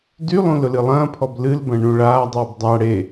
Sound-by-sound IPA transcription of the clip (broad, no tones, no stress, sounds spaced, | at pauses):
d y lˠ ũ l ʊ l ɨ lˠ ɐ̃ː pʰ ɔ b l ɨ l b ɐ̃ ɳ ũ ɭ aː dˤ ɨː b dˤ a ɽ e